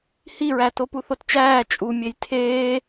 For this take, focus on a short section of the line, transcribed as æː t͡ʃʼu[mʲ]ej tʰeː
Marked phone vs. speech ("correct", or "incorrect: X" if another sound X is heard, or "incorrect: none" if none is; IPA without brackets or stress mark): correct